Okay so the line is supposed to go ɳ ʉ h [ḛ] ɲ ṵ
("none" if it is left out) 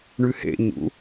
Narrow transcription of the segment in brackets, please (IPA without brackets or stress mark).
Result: ḛ